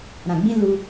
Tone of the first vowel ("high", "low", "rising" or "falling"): low